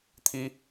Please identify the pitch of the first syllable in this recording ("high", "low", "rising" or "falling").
high